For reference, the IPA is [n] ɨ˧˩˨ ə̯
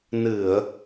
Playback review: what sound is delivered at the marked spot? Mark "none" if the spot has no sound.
n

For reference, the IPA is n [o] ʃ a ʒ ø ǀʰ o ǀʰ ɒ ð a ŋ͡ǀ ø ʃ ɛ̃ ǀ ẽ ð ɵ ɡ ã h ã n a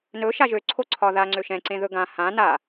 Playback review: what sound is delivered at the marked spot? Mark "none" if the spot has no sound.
ɵ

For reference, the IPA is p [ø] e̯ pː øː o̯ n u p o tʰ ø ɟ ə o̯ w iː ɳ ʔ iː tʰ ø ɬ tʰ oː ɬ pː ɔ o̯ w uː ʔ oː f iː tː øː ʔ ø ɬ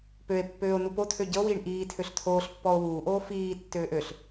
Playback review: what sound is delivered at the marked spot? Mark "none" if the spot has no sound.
ø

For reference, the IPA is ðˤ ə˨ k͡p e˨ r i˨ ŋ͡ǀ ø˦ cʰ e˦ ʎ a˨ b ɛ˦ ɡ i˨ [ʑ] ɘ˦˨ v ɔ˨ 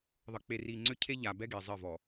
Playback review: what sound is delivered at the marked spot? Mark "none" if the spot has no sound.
zˤ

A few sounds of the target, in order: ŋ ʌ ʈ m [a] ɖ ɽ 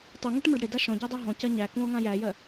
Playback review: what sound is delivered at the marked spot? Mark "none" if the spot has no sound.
ʌ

